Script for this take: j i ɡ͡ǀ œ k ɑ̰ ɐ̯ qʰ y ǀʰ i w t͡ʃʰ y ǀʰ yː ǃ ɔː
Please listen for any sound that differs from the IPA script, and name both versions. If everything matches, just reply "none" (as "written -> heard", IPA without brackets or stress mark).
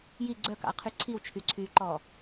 none